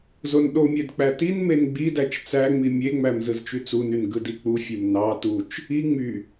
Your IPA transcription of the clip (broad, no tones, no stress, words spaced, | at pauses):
zonɗomʲed k͡pætinmen ɡ͡bidæt͡ʃ t͡sæŋ͡mi mʲeŋ͡mæm zɯzt͡ʃyt͡sunyn ɡɯdik͡pufʲem nɑ tut͡ʃ | i ŋ͡my